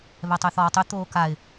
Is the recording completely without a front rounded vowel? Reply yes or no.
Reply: no